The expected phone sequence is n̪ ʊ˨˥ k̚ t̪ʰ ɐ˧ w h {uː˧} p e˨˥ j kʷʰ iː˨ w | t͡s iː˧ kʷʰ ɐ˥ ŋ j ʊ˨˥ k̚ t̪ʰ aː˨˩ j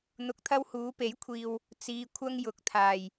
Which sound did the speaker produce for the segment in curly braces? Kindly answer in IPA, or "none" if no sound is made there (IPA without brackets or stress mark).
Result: uː˨˧